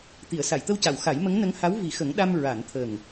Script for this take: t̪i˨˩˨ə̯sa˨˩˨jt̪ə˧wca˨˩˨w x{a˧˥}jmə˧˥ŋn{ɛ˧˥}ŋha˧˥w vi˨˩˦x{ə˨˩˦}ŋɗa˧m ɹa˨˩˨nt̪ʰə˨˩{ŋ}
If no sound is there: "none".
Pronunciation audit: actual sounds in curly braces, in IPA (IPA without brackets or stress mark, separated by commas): a˨˩˦, ə˧˥, ə˨˩˦, ŋ